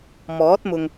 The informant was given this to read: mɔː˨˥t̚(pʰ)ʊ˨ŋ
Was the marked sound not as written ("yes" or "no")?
yes